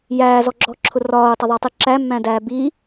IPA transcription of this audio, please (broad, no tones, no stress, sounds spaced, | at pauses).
j æː z ɔ ɡ͡ǁ ɔː ǁʰ ʊ r ɒː u̯ tˤ ʌ ðˤ ɑ tˤ i ǁ æ mː æ̃ d æː b i